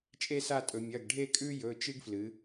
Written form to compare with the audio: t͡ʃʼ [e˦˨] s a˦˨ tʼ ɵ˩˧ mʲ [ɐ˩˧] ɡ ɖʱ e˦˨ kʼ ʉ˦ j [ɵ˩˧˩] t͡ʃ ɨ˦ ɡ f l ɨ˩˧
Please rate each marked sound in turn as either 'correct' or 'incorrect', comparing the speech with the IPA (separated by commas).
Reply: incorrect, incorrect, correct